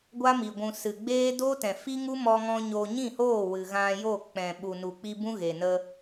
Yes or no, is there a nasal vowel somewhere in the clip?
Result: yes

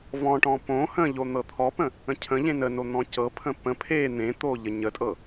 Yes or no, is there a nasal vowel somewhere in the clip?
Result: yes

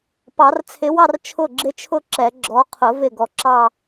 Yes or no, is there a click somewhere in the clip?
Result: yes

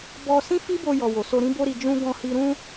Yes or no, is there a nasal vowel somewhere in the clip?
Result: yes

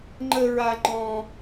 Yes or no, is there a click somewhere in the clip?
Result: yes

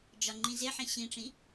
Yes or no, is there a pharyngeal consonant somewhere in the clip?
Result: yes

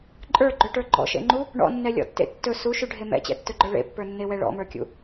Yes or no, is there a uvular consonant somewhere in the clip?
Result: no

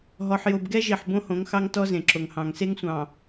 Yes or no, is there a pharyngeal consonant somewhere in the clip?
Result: yes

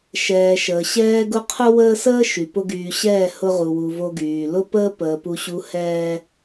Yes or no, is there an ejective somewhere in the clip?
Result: no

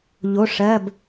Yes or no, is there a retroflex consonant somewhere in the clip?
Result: yes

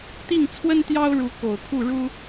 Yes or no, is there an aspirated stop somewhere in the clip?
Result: yes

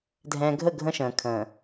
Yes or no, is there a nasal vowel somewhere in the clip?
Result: yes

